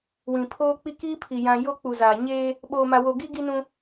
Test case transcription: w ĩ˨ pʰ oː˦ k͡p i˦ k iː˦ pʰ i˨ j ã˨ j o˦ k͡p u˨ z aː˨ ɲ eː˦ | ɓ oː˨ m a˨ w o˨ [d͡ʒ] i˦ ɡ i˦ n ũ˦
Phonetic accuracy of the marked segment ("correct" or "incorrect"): incorrect